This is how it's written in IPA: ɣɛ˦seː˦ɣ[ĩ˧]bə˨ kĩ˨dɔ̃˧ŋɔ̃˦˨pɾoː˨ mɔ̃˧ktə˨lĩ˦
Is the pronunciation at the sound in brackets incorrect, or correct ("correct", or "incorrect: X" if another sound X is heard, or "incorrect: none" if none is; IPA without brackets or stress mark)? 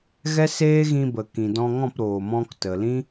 correct